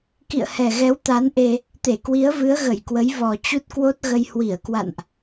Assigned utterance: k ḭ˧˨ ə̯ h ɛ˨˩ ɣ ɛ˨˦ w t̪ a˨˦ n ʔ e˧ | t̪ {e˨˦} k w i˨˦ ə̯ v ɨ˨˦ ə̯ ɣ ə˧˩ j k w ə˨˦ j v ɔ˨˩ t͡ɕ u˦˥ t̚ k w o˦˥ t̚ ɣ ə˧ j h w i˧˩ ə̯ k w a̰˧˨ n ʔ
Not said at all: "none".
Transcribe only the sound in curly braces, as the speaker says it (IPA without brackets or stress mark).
e˧˩